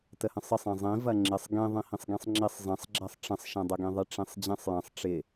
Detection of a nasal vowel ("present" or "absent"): present